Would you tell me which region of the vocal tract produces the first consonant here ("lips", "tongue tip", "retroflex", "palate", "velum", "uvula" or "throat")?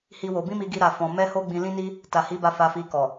throat